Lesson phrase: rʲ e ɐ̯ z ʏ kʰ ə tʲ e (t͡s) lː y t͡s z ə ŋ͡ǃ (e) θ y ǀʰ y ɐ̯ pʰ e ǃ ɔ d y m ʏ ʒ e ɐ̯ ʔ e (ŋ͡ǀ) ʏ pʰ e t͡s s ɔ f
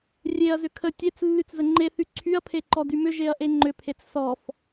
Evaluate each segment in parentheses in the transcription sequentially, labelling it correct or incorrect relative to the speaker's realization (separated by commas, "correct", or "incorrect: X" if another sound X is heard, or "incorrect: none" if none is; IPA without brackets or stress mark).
correct, correct, incorrect: ŋ͡ǃ